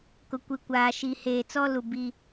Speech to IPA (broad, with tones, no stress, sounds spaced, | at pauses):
k ʊ˨ kʷ i˨ kʷ aː˨ ʃ i˨ h eː˨ t͡s ɔ˦ l u˨ b i˦